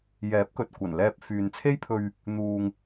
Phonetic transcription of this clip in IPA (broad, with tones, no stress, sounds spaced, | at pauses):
j ɛː˨˥ p̚ k ɵ˨ t̚ kʷ ɐ˨˩ n l ɛː˧ p̚ f yː˨ n t͡sʰ e˥ j pʰ ɵ˧ ɥ | n̪ uː˨ ŋ